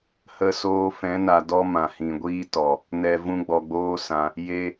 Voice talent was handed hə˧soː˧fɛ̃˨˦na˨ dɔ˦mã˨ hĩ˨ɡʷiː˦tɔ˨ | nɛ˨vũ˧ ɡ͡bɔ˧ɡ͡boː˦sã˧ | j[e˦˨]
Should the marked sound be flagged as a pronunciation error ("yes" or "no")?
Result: yes